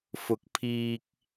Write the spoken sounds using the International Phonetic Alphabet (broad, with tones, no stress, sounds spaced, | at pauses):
f ʊ˨˥ k̚ pʰ iː˨ k̚